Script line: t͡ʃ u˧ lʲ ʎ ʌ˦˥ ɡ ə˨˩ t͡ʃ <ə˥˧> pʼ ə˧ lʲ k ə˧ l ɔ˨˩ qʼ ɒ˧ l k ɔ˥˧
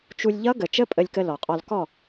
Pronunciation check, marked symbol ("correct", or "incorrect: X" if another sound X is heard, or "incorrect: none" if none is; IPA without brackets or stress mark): incorrect: ə˦˥